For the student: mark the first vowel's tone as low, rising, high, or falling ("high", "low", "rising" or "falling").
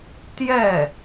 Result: falling